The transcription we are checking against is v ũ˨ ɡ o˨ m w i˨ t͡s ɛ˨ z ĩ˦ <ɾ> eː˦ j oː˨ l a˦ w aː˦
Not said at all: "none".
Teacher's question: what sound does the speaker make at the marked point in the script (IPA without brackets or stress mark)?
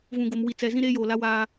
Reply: ɾ